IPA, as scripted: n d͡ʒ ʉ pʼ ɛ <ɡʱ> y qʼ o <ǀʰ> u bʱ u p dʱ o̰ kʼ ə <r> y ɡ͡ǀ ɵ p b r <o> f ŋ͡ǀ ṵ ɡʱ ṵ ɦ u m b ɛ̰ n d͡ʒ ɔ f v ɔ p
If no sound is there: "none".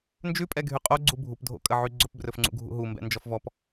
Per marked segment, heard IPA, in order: ɡʱ, ɡ͡ǀ, ʕ, ɵ

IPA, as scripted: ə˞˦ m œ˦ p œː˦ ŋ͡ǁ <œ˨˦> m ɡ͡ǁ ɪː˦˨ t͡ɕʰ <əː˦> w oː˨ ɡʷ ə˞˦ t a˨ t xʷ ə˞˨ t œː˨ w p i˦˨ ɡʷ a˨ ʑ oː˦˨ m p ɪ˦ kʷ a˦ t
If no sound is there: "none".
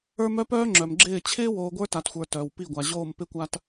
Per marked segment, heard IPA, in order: œ˨, ɪː˦

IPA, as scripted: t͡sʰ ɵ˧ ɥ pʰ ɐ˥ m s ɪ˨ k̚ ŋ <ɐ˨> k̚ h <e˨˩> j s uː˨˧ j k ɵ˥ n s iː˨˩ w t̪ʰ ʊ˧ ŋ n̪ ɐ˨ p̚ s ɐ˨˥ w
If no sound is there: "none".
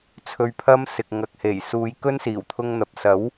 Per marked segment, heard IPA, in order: ɐ˨, e˨˩

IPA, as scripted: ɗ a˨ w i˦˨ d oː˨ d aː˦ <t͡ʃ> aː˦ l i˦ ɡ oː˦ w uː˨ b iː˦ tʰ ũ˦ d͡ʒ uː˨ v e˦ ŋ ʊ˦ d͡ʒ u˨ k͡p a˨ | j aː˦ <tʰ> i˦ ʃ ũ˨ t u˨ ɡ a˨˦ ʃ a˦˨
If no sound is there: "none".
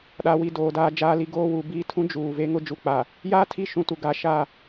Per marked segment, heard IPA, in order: d͡ʒ, tʰ

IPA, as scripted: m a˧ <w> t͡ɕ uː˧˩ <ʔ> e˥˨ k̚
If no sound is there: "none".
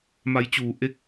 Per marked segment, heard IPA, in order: j, ʔ

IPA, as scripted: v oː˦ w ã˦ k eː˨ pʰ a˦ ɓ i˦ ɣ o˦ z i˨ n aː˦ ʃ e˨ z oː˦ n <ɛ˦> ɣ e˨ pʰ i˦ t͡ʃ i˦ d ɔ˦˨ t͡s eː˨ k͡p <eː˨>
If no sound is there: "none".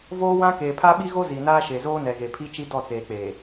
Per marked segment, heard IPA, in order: ɛ˨, eː˨

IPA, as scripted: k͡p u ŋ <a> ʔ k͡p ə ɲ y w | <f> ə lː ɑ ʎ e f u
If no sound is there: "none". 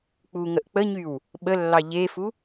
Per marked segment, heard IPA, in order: ə, ɓ

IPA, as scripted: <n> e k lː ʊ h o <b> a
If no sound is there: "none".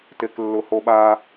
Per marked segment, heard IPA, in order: t, ɓ

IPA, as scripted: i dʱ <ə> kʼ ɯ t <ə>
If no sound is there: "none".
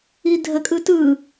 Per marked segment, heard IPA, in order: ə, ɯ

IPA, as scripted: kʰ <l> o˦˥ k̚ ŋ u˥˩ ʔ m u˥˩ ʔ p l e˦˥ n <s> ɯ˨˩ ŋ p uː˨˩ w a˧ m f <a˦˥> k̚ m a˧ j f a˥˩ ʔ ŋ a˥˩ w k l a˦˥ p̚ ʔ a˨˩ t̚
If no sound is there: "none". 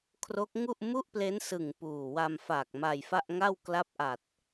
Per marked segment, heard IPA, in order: r, s, a˨˩

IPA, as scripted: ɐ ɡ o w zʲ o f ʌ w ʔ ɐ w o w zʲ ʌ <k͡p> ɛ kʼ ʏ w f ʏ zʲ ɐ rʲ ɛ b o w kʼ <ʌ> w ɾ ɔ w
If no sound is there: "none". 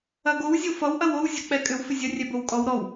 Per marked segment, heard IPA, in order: k͡p, ɔ

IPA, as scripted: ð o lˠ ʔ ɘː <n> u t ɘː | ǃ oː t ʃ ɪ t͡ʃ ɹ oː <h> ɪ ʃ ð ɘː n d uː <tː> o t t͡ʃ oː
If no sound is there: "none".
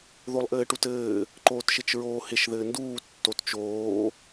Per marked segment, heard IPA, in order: ʈ, h, tː

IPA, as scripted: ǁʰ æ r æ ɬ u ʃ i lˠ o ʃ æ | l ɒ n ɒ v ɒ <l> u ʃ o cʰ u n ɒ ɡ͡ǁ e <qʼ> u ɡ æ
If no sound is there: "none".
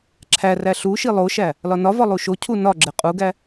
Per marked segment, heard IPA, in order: lˠ, qʼ

